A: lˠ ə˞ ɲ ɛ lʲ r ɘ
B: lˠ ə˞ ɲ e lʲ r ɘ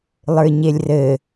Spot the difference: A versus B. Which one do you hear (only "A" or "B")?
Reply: B